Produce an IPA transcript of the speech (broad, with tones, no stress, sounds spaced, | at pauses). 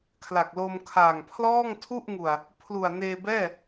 kʰ l a˨˩ k̚ l o˧ m kʰ a˨˩ ŋ pʰ l ɔː˥˩ ŋ tʰ u˥˩ ʔ ŋ u˨˩ a̯ | pʰ l u˨˩ a̯ n eː˧ b ɛː˥˩